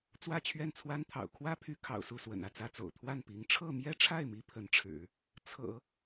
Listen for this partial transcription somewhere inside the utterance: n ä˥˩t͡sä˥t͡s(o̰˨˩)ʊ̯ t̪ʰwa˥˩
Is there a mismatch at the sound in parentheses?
no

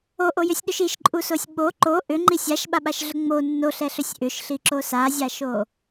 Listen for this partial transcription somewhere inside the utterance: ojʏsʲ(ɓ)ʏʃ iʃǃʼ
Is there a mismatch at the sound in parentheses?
yes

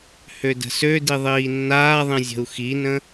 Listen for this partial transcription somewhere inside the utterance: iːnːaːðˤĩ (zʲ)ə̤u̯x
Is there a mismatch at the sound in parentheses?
no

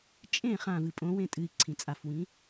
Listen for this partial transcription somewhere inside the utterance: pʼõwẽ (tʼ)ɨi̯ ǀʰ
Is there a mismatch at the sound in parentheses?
no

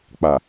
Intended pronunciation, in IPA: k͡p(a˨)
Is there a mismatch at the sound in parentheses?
no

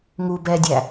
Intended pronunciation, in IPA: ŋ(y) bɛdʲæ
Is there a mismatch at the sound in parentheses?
yes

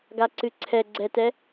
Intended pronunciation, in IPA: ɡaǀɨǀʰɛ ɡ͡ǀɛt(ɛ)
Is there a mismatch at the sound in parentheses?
no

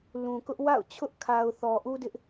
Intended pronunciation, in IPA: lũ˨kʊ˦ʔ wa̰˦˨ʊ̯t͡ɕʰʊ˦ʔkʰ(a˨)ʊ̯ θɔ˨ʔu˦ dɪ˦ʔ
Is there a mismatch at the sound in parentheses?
no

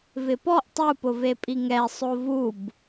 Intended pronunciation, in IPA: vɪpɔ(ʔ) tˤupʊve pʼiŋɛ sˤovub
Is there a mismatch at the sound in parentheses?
no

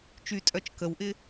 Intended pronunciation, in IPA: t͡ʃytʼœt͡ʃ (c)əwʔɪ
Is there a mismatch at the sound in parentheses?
yes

